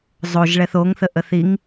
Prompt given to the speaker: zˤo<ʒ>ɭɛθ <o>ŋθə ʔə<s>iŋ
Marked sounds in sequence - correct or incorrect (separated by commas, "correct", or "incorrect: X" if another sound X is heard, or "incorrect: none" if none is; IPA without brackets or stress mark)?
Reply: correct, correct, incorrect: θ